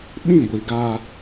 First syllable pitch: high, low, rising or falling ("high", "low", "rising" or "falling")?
falling